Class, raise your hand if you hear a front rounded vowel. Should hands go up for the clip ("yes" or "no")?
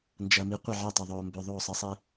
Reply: yes